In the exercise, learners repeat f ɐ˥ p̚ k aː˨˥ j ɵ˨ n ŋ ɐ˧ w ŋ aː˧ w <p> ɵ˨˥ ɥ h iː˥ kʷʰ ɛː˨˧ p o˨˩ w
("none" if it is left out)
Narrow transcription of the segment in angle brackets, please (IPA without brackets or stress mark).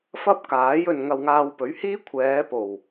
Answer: p